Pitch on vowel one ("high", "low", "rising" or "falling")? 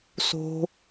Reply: high